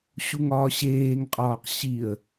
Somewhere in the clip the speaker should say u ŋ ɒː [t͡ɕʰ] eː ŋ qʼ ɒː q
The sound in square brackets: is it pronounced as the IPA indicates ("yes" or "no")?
no